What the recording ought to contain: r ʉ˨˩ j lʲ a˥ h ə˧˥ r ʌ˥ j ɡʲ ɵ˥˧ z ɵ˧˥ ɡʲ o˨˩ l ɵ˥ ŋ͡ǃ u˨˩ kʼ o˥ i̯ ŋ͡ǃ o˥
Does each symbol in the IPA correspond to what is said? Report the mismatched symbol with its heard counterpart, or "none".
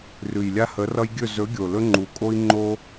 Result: none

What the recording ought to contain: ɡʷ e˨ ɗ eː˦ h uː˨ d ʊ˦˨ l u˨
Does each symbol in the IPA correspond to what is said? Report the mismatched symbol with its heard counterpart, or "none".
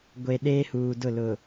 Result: u˨ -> ʊ˨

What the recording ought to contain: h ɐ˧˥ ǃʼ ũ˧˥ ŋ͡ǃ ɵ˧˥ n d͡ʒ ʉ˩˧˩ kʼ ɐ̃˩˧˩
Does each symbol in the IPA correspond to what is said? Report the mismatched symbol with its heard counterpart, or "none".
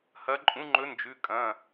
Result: none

